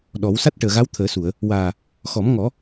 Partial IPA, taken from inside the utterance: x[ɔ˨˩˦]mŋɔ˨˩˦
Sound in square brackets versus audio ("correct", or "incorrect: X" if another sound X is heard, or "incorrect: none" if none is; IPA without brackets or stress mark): correct